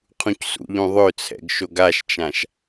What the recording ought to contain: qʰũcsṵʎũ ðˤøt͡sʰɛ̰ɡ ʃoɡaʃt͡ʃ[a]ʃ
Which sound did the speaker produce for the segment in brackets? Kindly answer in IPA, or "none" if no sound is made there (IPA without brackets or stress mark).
ã